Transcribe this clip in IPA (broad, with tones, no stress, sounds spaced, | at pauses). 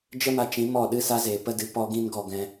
d͡ʒ ə˦ m a˧ t͡ʃ ĩ˨˦ m ɔ˦˨ ɗ ɨ˧ s a˧ z eː˨ p ə˦ d ɨ˧ p ɔ˦ ɡ ĩ˦ n ɡ ɔ˧ ɡ ɛ̃˧